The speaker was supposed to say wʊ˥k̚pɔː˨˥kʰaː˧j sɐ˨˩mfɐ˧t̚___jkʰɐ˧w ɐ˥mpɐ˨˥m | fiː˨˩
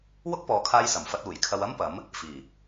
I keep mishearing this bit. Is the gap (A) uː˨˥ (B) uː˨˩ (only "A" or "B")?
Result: B